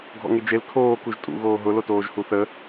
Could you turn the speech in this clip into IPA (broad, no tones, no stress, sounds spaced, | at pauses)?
ɡʱ ɔ̰ ŋ e d͡ʒ e l kʰ oː k u ʒ tʼ ṵ ɣ oː ɦ ʊ l o t oː ʒ h u θ ə